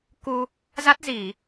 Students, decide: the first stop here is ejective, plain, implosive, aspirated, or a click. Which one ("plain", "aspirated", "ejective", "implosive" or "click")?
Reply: plain